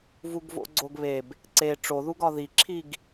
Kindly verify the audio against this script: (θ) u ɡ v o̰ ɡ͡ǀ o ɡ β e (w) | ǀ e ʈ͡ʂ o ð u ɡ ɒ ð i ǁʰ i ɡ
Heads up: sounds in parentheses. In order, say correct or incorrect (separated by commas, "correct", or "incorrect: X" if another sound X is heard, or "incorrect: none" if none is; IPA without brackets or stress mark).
incorrect: v, incorrect: b